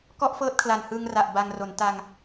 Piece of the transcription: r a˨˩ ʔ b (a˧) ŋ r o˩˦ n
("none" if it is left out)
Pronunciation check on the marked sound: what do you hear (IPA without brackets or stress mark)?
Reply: a˧